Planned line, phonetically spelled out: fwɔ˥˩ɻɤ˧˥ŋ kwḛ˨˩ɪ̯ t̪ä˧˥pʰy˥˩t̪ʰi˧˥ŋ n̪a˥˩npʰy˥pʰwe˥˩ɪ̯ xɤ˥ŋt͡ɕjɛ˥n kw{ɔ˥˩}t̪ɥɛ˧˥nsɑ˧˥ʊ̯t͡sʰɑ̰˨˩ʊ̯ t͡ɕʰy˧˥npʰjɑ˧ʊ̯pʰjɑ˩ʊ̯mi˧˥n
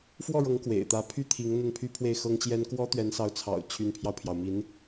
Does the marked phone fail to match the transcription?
yes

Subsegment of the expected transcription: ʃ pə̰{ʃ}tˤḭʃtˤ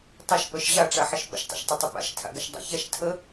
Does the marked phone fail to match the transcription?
no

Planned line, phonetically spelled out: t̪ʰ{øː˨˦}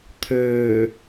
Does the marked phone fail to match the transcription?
yes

